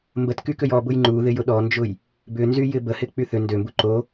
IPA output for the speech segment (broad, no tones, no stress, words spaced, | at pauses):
mbətkykøj ɔ bʊjŋ͡ǃuðɪjʊ ɗɔnd͡ʒʊj | bʏnzyjɪ bəhɪk͡py θʏ ndømbu ǃo